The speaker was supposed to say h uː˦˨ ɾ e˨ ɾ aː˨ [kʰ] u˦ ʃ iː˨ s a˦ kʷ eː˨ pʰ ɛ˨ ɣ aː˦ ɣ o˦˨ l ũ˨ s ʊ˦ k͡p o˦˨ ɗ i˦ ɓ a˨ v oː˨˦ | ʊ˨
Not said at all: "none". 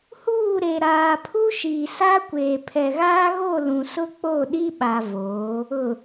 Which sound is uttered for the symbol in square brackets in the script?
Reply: pʰ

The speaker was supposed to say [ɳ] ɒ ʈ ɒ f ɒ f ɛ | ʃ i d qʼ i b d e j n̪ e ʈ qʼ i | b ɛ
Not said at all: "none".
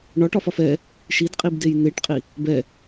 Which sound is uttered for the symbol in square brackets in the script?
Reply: ɳ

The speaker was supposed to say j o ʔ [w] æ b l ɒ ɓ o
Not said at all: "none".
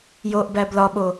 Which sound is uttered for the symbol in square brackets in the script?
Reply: b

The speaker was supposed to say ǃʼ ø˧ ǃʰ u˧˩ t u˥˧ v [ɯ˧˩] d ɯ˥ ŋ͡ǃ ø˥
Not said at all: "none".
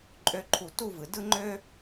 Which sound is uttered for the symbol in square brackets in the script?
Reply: ɯ˩˧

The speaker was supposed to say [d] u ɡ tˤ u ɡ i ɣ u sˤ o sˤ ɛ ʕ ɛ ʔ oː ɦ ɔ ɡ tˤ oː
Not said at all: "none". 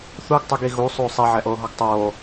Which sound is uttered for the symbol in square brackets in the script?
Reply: θ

